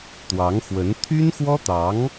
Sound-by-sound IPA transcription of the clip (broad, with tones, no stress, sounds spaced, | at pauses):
t̪ w ɑ˧˥ ŋ x w ə˧˥ n t̪ʰ y˥ n x w ɔ˥ t̪ ɑ˧˥ ŋ